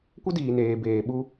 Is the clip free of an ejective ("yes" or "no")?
yes